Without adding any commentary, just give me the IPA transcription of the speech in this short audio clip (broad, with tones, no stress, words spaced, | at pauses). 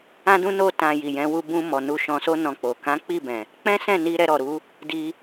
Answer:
ã˧dũ˧no˧tã˨ ji˨jɛ̃˨˦ wu˧bũ˧mɔ˨ nu˧ʃɔ̃˧so˦ nɔ̃˧k͡po˨ kã˨˦k͡pi˦˨bɛ̃˨ | k͡pɛ̃˦sɛ̃˦˨ni˧ ɾɛ˧ɾɔ˨ɾu˨˦ | di˧